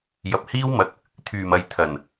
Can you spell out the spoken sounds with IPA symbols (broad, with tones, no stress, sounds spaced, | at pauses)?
j ɐ˨ p̚ h iː˥ w m ɐ˧ k̚ | t̪ʰ yː˨˩ m ɐ˨ j t̪ʰ ɐ˨˩ n